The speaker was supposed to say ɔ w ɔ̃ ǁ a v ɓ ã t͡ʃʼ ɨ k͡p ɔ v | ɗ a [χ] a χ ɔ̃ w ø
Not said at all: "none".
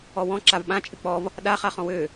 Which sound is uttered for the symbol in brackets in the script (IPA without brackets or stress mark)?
χ